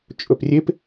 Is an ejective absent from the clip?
no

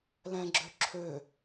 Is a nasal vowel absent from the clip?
no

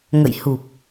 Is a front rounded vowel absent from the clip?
yes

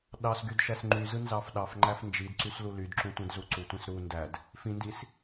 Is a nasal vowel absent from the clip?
no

